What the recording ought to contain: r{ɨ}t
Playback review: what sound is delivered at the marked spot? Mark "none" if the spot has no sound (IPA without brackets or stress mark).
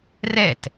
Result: ɛ